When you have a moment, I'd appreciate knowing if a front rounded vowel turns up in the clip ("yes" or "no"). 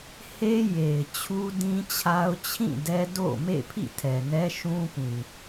no